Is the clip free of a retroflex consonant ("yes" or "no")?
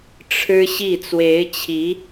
no